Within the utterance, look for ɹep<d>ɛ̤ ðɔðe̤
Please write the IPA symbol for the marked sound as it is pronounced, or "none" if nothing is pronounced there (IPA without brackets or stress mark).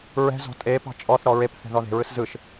θ